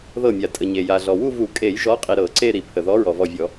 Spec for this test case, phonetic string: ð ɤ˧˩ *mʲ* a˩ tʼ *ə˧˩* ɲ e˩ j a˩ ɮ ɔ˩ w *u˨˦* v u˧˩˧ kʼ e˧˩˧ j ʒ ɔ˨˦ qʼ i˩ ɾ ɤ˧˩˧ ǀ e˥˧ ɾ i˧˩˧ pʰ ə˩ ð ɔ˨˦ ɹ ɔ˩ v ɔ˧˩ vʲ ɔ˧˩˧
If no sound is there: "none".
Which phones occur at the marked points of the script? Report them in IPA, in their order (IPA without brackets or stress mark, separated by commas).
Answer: mʲ, ə˩, u˥˧